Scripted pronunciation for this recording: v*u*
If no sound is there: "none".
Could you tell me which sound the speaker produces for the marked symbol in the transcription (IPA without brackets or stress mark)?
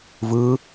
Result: ɯ